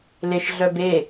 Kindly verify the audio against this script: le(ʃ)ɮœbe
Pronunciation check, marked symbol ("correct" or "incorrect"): correct